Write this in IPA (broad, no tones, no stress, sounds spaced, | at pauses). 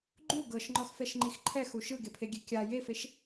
ɡ͡ǃ u ɡ ɤ ʃ ŋ͡ǃ ɔ x f ɛ ʃ ŋ͡ǃ i x ǃʰ ɛ x u ʃ ɯ ɡ e pʰ e ɡʲ e kʲ a j e f e ʃ